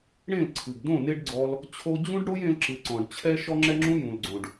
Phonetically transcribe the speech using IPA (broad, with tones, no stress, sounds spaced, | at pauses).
ɽ ẽ˦˨ l ǀʰ ɨ˨ ɡ d õ˦˨ n e˦ ɖ ɡ͡ǀ ɔ˧ l | t͡ɕʰ o˧ d͡ʑ ũ˦ ɖ ɽ o˦ j ẽ˧ l ǁ ɨ˨ ǀ ɔ̃˨ ɖ t͡ɕʰ ɛ˦ ʃ ɔ˦ ŋ͡ǁ ɛ˦ ŋ͡ǁ ũ˦ j ũ˨ l ɡ͡ǀ õ˨ ɖ